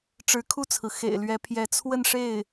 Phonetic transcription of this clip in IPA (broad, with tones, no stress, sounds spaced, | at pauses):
ʈ͡ʂ ɻ̩˧˥ kʰ u˥˩ t͡sʰ ɹ̩˩ x ḛ˨˩ ɪ̯ l ɥ ɛ˧˥ pʰ j ɛ˧˥ t͡sʰ w ə˥˧ n ʂ e˥˩ ɪ̯